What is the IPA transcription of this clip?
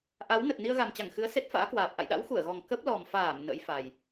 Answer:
ʔa˨˦wnə˨˩t̚ ni˧ə̯ɣa˨˩mt͡ɕa˧˩ŋxɨ˨˦ə̯ se˦˥t̚fa̰ː˧˥kwaː˨˩p̚ ʔa̰˧˨jɗa̰˧˥w xu˧˩ə̯ɣɔ˨˩ŋ kə˦˥p̚lɔ˨˩mfaː˧˩m nə̰˧˥j fa˨˩j

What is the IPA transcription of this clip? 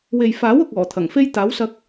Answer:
we˨j faː˨˥wʊ˨k̚ ɔː˨˩t̪ʰɐ˨˩ŋfe˥j t̪aː˨˥wsɐ˧k̚

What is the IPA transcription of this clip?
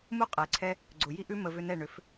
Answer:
mu˦qʼɛ˨ǀʰɛ˦ | ɡ͡ǀʊ˨ ji˧ʔʉ˧ mə˧vʏ˧nɛ˦˨ ɳʏ˨˦f

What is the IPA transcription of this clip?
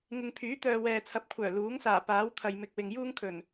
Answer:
ŋɪ˨ŋpʰyː˨˥t̪œː˨ wɛː˨t͡sʰɐ˨˥p̚kʷʰœː˨˩ luː˨˥ŋsaː˨˩ paː˨˥wt̪ʰɐ˨jmɪ˨k̚ wɪ˨ŋjuː˥ŋkʰɵ˨˩n

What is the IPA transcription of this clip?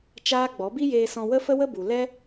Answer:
t͡ʃaː˦ɡ͡bɔ˨˦ bi˦jeː˧sɔ̃˧ wə˦fə˦wə˦bu˨ lɛ˦

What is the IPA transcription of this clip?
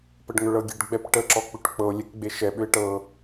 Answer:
pəɖŋʏɭɤɡʲeɖ ɡ͡bɛpʈə ǁɔk͡pʏʈk͡pɤo̯ lʲɛkɡ͡beʃɛ ɓʏe̯ʈɤ

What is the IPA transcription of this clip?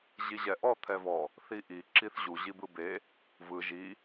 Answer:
ʑiʑɛʔɔ t̪ʰɛvɔ | θiʔi ǁiθʑu ʑibɯbe | vɯ ʒi

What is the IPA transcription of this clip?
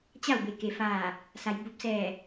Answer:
t͡ɕa˥˨wbe˩ke˩˧ faː˧˩ | sa˩˧jbu˧˥p̚ sɛː˧˩

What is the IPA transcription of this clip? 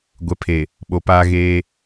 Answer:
ɡʷɛ˨pʰe˨ | ɓo˨paː˦ɣeː˦

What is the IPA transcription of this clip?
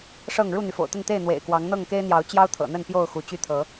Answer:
ʂɤ˥˨ŋ ɻu˥˨n̪y˩fo̰˨˩ʊ̯t̪ə˥˨n t̪e˥˨ɪ̯n̪wḛ˨˩ɪ̯ kwɑ˨˦ŋn̪ɤ˥˨ŋke˦ɪ̯n̪jɑ˨˦ʊ̯ t͡ɕjɑ˦ʊ̯t̪ʰɤ̰˨˩n̪ə˥˨n pjo˥˨ʊ̯xu˨˦t͡ɕy˥˨t̪ʰɤ˨˦

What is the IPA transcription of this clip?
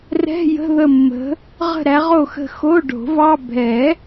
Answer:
rɛ̤˧˥˧jə̤˧˥˧ðə˦˨ mːə̤˨˦ | ʁə̤˦˨ɾæ˨˦ʁo˦˨xə̤˦˨ xo˧˥˧ɖo̤˨˩˦vɑ˧˥˧ bʱɛ˨˩˦

